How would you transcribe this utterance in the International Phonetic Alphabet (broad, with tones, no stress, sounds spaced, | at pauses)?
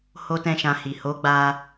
h o˦ t ɛ̃˦˨ ʃ ã˧ h i˨ h o˨˦ ɡ͡b a˧